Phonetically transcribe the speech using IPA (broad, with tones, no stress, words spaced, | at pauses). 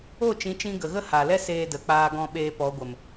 o˦˨t͡ʃĩ˨˦t͡ʃĩ˧ ɡə˨ɣə˦ha˨lɛ˦ seː˧də˨k͡paː˧ɡɔ̃˧ ɓeː˧pɔ˨˦ɡʷə˨m